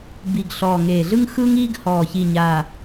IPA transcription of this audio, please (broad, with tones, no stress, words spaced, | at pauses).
bi˨˩ɡ ɬɔː˨˩ŋeː˨˩ɮɯ˦ŋ xɯː˦ŋiː˦ɡ hɔː˨˩çi˨˩ɲaː˨˩